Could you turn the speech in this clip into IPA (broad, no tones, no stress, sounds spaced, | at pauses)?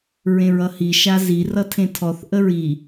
ɹ ẽ ɹ ʌ h i ʃ a z i r ʌ tʰ ẽ tʰ ɔ θ ʔ ə ɹ i